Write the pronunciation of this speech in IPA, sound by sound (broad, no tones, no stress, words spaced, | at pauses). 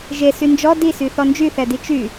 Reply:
ʒe synd͡ʒɔ disy θɔnd͡ʒyθɛdi t͡ʃy